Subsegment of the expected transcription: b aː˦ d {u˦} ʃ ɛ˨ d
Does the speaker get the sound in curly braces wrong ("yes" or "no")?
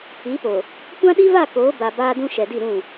yes